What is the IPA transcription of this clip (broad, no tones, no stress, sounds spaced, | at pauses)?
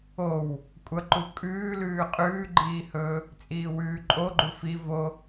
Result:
o w | kʷʼ ɐ ǃ u kʼ ʉː l ʉː qʼ ʉː ɡ͡ǃ iː h ɵ | t͡sʼ iː w ʉː ǃʼ o ɡ͡ǃ u f i v o